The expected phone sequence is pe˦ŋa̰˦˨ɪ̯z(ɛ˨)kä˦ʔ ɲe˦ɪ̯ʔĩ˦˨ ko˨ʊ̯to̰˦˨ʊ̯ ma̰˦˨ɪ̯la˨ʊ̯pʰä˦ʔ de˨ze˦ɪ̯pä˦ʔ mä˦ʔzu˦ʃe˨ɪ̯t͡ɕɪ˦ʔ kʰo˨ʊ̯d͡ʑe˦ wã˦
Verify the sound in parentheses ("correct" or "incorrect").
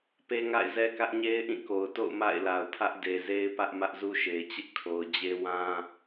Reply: incorrect